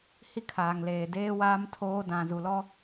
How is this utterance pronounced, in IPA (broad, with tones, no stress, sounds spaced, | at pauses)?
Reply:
h i˦ kʰ aː˨ ŋ l eː˨ d eː˦ w aː˦ m tʰ oː˦ d ã˨ z u˨ l ɔ˦